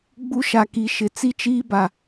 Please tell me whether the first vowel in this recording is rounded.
yes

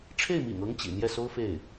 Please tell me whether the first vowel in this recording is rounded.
no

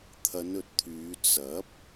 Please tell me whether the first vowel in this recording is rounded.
no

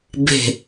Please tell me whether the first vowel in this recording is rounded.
no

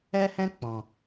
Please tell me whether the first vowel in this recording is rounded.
no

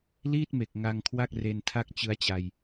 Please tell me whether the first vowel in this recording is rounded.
no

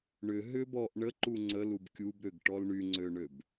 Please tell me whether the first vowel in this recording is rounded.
yes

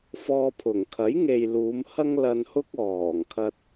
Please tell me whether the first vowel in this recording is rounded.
yes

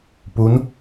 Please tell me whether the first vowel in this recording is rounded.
yes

